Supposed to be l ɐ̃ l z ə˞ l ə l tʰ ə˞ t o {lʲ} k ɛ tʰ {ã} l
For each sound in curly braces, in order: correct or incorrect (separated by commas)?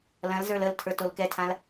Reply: incorrect, correct